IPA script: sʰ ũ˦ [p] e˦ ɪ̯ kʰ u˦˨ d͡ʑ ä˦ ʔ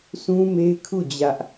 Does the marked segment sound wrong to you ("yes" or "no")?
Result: yes